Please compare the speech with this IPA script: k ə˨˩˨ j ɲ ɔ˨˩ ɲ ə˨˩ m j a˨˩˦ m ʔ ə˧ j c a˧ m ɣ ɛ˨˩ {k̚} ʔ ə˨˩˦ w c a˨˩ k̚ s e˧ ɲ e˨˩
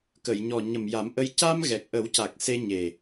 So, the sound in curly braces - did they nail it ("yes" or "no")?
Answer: yes